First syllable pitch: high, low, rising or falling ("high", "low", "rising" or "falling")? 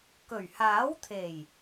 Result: low